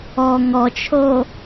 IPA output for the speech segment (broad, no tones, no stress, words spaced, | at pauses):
ɔ ŋɔt͡ʃʰo